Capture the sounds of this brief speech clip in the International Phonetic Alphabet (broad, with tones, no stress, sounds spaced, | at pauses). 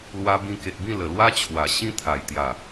l w a˧ b ĩ˧ k e˨ t̚ b ĩ˥˧ l ə˨˩ l w a˦ t͡ɕʰ w a˨˩ ɕ ĩ˦ t̪ʰ a˨˩ j t̪ j a˨˩